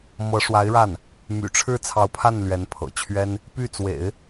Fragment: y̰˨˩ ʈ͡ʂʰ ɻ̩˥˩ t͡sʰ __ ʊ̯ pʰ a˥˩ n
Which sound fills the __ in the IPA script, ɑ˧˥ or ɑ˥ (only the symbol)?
ɑ˧˥